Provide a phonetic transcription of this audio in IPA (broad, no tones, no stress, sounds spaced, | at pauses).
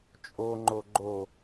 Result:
t͡ʃʼ o ŋ͡ǃ o ɡ͡ǃ o